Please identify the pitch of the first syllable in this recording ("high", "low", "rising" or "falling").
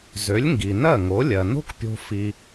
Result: rising